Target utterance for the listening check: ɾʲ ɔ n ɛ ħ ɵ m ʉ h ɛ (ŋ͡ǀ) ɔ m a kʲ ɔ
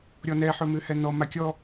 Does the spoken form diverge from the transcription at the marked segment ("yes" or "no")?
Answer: yes